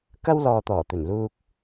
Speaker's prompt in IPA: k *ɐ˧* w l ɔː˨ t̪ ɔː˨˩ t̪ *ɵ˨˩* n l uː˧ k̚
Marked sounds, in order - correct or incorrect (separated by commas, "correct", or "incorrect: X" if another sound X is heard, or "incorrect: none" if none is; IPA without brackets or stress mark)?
incorrect: ɐ˥, correct